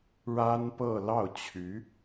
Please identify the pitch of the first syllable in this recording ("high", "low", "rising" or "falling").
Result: high